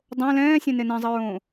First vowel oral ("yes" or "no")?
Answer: no